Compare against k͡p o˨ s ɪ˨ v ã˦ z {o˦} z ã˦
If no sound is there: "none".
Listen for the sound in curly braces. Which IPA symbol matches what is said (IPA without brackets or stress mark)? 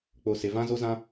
o˦